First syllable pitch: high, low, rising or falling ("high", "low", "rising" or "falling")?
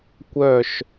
falling